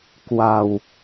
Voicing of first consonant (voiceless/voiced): voiceless